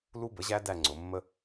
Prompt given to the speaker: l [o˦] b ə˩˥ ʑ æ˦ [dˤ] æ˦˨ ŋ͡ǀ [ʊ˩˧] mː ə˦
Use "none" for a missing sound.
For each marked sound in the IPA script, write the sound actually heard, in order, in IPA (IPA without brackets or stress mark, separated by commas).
u˦, d, ʊ˩˧